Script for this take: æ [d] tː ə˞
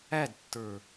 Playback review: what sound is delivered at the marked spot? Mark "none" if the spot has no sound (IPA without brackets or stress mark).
d